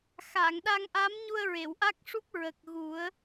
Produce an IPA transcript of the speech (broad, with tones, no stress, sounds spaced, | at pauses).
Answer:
x a˨˩˨ ŋ ɗ a˧ ŋ ʔ a˧˥ m ɲ u˧ ə̯ ɹ e˨˩˨ w ʔ a˦˥ k̚ ʂ u˦˥ p̚ ɹ ə˨˩ k̚ ɣ u˨˩˦ ə̯